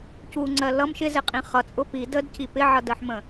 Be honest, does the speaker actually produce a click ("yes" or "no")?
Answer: yes